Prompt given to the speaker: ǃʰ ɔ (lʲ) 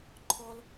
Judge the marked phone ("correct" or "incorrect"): incorrect